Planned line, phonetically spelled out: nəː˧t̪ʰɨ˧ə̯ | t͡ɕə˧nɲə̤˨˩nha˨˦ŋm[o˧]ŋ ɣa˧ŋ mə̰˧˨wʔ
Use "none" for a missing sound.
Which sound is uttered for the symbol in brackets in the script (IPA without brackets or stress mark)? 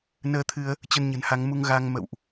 u˧